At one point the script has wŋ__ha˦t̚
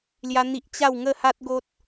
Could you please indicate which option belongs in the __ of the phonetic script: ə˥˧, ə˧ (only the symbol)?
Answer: ə˥˧